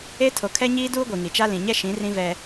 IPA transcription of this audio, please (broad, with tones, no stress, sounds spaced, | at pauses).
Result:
e˦ tʰ o˨ kʰ ɛ˦ ɲ iː˦ d uː˦ ɡʷ i˨ ŋ i˨ t͡ʃ a˦ l ĩ˨ ɲ ɛ˦ ʃ ĩ˨˦ r ĩ˦ v ɛ˦